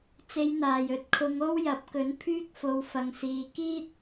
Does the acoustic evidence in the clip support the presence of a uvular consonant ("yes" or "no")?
no